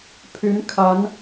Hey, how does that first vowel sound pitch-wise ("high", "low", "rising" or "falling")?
rising